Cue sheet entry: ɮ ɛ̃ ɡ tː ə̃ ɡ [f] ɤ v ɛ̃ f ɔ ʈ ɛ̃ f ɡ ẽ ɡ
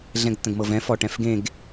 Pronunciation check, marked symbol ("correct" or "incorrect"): incorrect